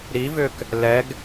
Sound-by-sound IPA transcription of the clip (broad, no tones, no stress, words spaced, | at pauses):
ɾivʏk | lɛɡ